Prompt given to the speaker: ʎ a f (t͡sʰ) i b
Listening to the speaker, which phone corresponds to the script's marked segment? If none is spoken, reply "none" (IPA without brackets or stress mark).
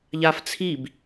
t͡sʰ